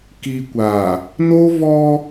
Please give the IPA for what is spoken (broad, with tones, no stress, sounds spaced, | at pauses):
k iː˨ kʷ aː˨ | n o˦ v ɔ˦